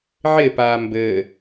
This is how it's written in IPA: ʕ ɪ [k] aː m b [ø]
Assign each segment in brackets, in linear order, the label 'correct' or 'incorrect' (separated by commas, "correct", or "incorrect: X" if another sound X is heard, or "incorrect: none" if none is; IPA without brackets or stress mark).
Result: incorrect: p, incorrect: ɘ